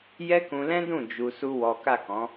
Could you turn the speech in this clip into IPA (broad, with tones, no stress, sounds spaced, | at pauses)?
j ɛ˦ k ũ˧ l ɛ̃˦ d ũ˦˨ d͡ʒ u˧ s u˦ w ɔ˦ k a˦˨ k ɔ̃˨˦